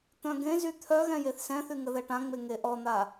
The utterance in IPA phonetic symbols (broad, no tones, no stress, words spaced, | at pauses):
t̪œ̃ɡẽzy t̪ʰœɣɛ̃ jeθsɛ̃θy ŋəðɛʈãŋ͡me ŋeʔɔn̪a